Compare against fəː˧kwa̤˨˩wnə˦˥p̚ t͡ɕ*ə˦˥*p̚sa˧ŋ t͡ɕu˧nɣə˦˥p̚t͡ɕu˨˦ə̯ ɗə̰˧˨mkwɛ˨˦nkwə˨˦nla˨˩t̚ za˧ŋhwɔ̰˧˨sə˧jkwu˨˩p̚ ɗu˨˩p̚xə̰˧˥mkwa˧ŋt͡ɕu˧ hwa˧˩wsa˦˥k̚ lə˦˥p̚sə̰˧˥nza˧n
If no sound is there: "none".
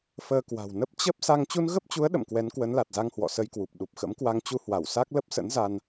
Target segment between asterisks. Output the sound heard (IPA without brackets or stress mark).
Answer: ə˦˥